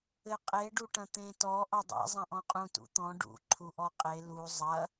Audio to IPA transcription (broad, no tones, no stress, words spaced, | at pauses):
ɘqʼe ɖuʈɐ̃t̪ẽ tɔ ʔɔdˤḛ zˤɐ̃ʔɔ̃qʼũ tṵt̪ɔ̃ ɖṵ ǃʰuʔɔqʼe lu zˤɐ